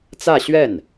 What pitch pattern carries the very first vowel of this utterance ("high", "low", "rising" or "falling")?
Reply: falling